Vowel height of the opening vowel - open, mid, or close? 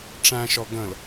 open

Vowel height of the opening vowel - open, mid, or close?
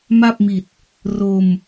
open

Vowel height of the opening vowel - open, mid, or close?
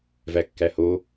open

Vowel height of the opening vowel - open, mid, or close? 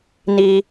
close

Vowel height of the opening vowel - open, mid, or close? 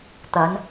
open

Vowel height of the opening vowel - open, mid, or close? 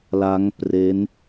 open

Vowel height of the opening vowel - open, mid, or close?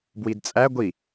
close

